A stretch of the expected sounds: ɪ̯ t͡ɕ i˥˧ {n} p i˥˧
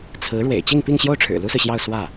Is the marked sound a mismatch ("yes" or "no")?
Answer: yes